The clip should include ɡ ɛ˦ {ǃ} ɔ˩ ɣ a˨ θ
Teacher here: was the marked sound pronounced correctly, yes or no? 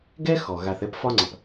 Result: no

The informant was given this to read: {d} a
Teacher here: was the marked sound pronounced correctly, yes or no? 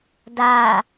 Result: yes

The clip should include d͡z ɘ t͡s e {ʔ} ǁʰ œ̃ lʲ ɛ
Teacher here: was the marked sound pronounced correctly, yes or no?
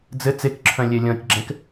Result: no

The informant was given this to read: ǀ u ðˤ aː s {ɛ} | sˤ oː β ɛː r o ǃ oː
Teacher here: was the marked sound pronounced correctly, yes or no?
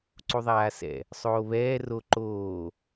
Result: no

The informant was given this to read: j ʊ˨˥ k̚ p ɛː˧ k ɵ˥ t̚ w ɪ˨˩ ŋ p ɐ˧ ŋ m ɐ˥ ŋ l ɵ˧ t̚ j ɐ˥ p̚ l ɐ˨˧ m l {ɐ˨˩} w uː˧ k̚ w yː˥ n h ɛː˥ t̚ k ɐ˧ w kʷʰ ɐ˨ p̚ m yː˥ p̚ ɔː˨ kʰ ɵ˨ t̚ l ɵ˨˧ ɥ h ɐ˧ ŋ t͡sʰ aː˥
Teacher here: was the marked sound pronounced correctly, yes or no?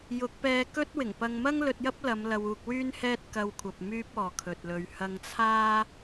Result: no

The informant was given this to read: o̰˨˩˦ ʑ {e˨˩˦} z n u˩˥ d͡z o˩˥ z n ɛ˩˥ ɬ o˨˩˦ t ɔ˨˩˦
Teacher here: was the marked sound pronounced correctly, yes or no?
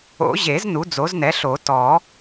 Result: yes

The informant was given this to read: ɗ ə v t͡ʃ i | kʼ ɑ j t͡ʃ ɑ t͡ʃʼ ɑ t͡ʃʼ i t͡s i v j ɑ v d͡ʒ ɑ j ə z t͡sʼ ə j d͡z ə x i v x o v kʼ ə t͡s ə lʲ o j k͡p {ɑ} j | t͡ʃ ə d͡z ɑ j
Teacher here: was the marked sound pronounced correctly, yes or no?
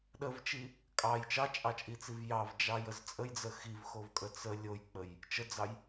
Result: no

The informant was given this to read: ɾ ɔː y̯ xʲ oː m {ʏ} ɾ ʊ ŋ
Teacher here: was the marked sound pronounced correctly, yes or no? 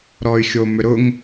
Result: yes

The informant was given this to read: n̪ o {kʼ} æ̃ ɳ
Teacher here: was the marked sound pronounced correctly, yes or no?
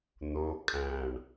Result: yes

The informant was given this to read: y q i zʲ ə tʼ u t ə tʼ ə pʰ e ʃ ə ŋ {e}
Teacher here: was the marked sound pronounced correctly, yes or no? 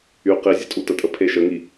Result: no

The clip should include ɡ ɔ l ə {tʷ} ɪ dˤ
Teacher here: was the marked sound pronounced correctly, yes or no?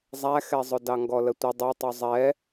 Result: yes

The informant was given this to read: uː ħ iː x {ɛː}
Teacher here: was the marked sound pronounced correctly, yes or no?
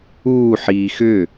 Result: no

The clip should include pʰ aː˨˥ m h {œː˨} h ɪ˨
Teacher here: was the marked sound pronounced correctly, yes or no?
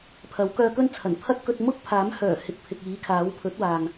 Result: no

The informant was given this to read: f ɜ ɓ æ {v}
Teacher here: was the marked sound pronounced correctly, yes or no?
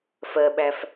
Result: no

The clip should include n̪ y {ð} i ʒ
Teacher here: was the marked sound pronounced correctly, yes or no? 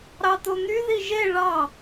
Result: yes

